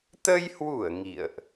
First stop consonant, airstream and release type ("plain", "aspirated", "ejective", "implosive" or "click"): plain